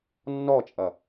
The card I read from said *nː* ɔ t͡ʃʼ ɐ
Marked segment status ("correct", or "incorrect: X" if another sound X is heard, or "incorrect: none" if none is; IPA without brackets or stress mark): correct